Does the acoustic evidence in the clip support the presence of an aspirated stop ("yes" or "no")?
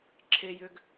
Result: yes